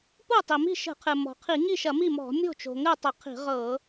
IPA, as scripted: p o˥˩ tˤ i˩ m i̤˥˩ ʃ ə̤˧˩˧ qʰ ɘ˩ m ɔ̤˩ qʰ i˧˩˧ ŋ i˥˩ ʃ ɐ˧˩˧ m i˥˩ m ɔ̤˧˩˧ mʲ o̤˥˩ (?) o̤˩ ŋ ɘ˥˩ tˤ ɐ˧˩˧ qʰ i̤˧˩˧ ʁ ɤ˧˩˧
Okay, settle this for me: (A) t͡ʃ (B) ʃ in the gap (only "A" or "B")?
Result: A